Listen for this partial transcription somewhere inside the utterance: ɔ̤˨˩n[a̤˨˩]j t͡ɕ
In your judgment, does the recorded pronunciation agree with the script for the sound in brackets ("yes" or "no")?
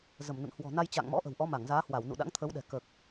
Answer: no